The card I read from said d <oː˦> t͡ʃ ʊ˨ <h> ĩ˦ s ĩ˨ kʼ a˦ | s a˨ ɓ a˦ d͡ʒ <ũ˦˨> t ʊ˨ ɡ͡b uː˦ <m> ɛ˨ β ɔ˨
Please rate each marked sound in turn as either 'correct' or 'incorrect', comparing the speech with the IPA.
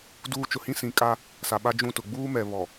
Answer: incorrect: uː˦, correct, correct, correct

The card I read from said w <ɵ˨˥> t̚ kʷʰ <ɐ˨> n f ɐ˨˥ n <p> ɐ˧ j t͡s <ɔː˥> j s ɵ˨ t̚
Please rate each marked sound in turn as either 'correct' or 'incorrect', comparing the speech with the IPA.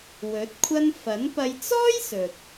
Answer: correct, incorrect: ɐ˥, correct, correct

